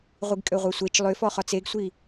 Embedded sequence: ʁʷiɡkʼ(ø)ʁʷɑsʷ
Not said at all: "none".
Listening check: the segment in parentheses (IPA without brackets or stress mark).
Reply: ø